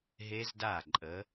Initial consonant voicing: voiced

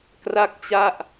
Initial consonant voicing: voiceless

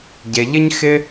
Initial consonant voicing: voiced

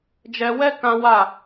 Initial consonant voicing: voiced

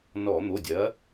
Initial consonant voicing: voiced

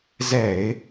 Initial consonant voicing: voiced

